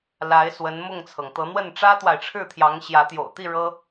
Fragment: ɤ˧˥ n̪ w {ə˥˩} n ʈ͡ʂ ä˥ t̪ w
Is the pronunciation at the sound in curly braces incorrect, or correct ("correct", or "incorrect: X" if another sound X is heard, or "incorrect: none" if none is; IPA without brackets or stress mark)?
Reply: correct